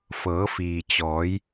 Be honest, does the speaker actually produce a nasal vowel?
no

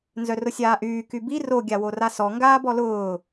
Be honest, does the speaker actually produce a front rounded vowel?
yes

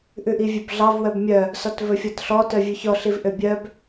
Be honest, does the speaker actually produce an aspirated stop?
no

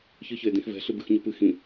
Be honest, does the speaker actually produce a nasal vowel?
yes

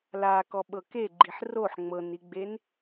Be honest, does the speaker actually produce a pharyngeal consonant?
yes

